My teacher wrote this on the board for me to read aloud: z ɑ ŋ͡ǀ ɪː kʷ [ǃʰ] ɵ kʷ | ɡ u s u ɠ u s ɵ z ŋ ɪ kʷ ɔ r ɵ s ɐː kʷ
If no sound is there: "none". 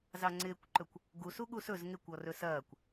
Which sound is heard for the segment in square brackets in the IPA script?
ǃ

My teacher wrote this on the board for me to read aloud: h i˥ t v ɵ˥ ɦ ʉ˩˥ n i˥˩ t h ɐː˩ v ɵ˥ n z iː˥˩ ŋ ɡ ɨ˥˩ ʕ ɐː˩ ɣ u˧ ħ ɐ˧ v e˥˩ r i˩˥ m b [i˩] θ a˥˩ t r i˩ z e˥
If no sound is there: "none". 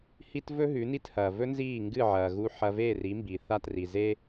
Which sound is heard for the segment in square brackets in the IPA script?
i˩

